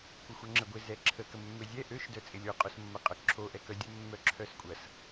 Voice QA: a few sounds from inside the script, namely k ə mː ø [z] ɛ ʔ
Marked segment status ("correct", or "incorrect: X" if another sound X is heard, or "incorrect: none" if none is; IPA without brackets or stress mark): incorrect: zʲ